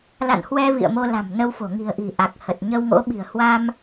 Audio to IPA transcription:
la̰˧˨nhwɛ˧ vḭ˧˨ə̯ mo˧la̤˨˩mnə˧wfo̤˨˩ ŋi̤˨˩ə̯ʔi̤˨˩ ʔa˨˩k̚ hə˨˩t̚ ɲə˧wŋo̰˧˥ɓi̤˨˩ə̯ hwa˧m

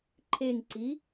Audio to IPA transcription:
ǃʰeŋǀi

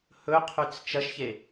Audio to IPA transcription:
hɵqʰʉt͡s t͡ʃɐʃçe

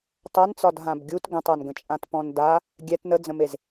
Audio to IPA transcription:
tˤant͡sɒd ɦãbɡʲut ɡə̃tˤanɡə̃t͡ʃʼãt pɔ̃nda | ɡʲɛt nəd͡zə̃mez

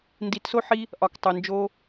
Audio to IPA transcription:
ndi˨˦tso˦ ħi˦ | ʔɒ˨k tˤo˨ nd͡ʒo˧

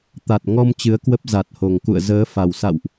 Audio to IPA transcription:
t̪a˨˩t̚ŋɔ˧m t͡ɕɨ˨˦ə̯kwə˦˥p̚ za˨˩t̚ho˨˩ŋ kṵ˧˨ə̯zəː˨˦ fa˨˩wsa̰˧˨wʔ

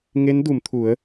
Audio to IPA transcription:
ŋe˧˥ndu˩˧m t̪ʰu˩˧ə̯

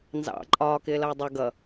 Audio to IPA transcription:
nzɑ̰ ǃʼɒː kɪːlʌːdˤʌ ɡʌ

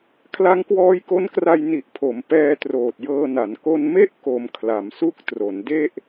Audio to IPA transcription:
kʰla˦˥ŋkwɔː˦˥jko˦˥nkra˧j ni˨˩ʔpʰo˩˦m pɛː˧troː˨˩t̚jɤː˧na˩˦n ko˧nme˥˩ʔko˩˦m kʰla˩˦msu˦˥k̚tro˩˦n de˥˩ʔ

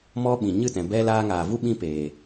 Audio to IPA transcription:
mɔ˦ɓĩ˨ ɲɨ˦˨tɛ̃˨ bɛ˧ laː˧ŋaː˨vu˦ ɓĩ˦peː˨

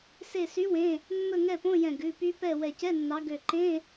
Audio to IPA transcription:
se˧˩sy˨˦wẽ˩˧˩ | mːɵ˥˨ŋɛ˥˨põ˧˥˧jɛ̃˧˩ ɡʉ˩˧˩py˦˥pɛ˥˨ wɛ˧˩cɛ˧˥˧nːɑ˨˦ ɡø˧˩ ǃẽ˧˥˧

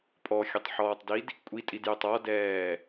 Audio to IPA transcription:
pʼɔxʲɵtˤħɔːtˤdid | kʷʼitʼidjøtˤ ɔdɛː

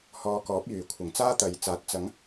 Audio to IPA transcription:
hɔː˧kɔː˨˥p̚jyː˨˩kʷʰɪ˨˩ŋ t͡saː˥t̪ɐ˨jt͡saː˨˥t̚ t͡sɐ˨˥ŋ

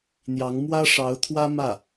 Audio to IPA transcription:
n̪jɑ˧˥ŋmwä˥ ʂɑ˧˥ʊ̯t̪ʰwä˥ mä˥˩

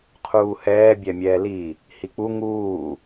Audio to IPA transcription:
qʰuːhɛː bʲɛmʲɛːli | hik͡pu ŋuː

